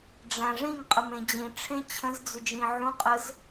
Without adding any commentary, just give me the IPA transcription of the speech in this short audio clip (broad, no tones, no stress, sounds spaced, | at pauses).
ɖ͡ʐ æ̃ ʐ ĩ ŋ qʼ ə m ẽ d͡ʑ ĩ ʈ͡ʂʰ ẽ t͡ɕʰ ə̃ z d͡z ʏ d͡ʒ ĩ ʕ ũ qʼ ə z